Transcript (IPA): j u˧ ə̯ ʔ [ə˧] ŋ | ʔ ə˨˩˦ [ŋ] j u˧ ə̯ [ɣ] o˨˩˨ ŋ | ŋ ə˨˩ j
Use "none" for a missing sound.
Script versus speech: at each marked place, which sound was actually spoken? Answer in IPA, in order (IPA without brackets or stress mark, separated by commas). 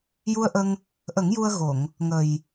ə˧, ŋ, ɣ